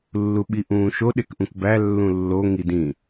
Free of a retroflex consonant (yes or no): yes